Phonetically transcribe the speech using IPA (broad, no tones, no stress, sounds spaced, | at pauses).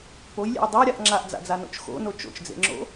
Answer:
p o j lʲ ḛ j dˤ a ɾʲ a ʔ ŋ͡ǁ a ʔ d͡z a̰ d͡z a n o̰ t͡ʃ x o̰ n o t͡ʃ o̰ t͡ʃ d͡z ḛ ŋ͡ǁ o̰